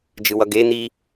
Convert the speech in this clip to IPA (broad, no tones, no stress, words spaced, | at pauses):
d͡ʒɯwʌɡe n̪i